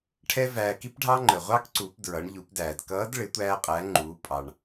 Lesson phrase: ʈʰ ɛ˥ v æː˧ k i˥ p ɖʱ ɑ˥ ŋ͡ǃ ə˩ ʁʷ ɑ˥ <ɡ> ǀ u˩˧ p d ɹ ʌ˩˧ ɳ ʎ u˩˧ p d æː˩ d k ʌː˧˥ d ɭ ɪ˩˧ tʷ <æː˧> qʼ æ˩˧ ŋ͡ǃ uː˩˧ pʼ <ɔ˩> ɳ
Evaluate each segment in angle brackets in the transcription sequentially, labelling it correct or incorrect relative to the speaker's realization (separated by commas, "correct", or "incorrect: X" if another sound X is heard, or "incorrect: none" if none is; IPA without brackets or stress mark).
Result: incorrect: k, correct, incorrect: ɑ˩